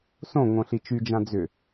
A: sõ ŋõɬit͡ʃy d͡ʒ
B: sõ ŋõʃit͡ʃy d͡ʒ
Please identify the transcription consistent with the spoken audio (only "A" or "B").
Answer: A